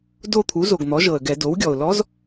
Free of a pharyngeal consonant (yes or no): yes